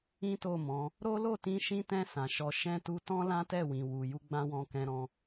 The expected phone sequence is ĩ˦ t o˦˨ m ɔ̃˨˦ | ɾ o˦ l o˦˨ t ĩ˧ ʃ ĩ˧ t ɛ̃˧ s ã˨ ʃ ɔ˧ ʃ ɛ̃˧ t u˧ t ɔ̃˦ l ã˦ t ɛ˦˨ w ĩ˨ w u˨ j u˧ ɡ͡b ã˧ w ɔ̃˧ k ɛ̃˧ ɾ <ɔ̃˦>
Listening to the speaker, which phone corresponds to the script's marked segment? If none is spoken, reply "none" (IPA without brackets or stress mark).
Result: ɔ̃˧